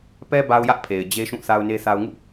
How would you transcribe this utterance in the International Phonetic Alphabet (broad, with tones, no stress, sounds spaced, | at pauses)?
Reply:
p ɛ˦ b a˦ ʊ̯ j ä˦ ʔ pʰ e˨ ɪ̯ d͡ʑ e˦ ʃ ũ˦˨ θ a˦ ʊ̯ n e˦ θ a˦ ʊ̯ ŋ ṵ˦˨